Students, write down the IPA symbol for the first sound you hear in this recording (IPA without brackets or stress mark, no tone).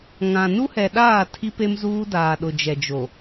ŋ